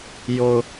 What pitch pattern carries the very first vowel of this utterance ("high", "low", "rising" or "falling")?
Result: low